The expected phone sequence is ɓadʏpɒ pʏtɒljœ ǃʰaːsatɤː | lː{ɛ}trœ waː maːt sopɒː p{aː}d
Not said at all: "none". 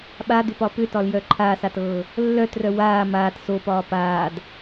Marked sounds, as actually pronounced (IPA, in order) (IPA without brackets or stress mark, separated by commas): œ, aː